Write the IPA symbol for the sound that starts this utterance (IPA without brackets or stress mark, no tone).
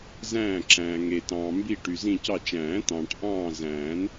z